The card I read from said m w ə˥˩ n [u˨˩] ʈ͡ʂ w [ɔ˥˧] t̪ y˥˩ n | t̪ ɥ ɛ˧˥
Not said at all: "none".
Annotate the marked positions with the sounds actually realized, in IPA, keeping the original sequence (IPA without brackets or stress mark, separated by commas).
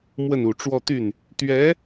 u˨˩, ɔ˥˧